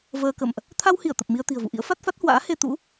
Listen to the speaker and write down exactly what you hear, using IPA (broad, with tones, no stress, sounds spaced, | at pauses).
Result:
v əː˧ k ə̰˧˨ m ʔ | t̪ʰ a˧ w h i˧˩ ə̯ t̪ ə˨˩ p̚ m i˧ ə̯ t̪ i̤˨˩ ə̯ v ṵ˧˨ ʔ ḭ˧˥ ə̯ f a˦˥ t̚ f a˦˥ t̚ h w a̰ː˧˥ h e˧ t̪ ṵ˧˥